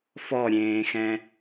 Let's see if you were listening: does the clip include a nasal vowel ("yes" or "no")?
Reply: yes